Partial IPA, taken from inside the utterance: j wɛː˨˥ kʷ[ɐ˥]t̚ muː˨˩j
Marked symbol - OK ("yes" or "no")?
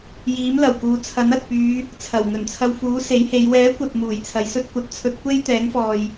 no